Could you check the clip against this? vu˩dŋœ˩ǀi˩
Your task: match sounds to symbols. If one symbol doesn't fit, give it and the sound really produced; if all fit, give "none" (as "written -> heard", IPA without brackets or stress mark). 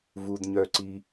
ŋ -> ɲ